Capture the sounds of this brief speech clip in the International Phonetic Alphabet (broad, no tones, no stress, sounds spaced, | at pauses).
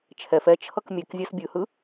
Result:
t͡ʃʰ ɛ f ɛ t͡ʃʰ ʌ k mʲ ɛ k zʲ a s bʲ ɯ h ɯ